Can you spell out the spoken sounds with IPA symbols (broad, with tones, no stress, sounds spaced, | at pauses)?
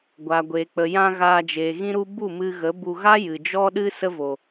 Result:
ɡʷ a˨ ɡʷ e˨ k͡p ə˨ j ã˧ ɣ aː˧ d͡ʒ e˨ ɣ ĩ˦ ɾ u˦ b u˦˨ m ɨ˧ ɣ ə˨˦ b u˧ ɣ a˦ j ɨ˨ d͡ʒ ɔ˦ ɗ ɨ˦ s ə˦ v o˨